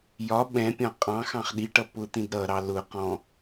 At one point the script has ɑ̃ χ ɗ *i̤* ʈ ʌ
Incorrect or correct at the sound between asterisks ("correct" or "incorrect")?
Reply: incorrect